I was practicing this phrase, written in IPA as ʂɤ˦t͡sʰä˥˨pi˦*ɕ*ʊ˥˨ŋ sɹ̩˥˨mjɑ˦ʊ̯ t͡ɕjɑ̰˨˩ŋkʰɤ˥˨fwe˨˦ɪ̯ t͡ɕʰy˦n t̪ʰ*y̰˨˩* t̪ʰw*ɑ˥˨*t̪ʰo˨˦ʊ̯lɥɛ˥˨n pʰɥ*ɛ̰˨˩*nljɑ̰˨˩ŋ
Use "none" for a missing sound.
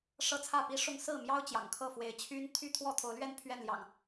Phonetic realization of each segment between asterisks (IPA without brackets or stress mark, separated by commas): ʂ, y˥˨, ɔ˥˨, ɛ˥˨